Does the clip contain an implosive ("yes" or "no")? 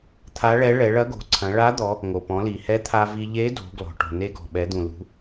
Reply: yes